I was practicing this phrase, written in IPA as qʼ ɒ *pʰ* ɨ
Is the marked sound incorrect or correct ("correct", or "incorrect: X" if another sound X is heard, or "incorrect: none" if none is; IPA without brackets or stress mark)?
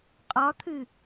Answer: incorrect: t̪ʰ